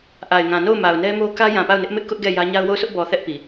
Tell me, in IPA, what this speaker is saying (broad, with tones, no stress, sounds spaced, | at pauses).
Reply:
ʔ a˨ ɪ̯ ŋ ã˨ n o˦˨ ʊ̯ m a˨ ʊ̯ n ɛ˦ m o˦ k ä˦ j ã˨ p a˦˨ ʊ̯ n ɪ˦ ʔ m ɪ˦ ʔ k ʊ˦ ʔ ɡ ɛ˦˨ j ä˦ ɲ a˦ ʊ̯ w o˦˨ ʊ̯ s ʊ˦ ʔ b ɔ˨ θ ɛ˦ ʔ p i˨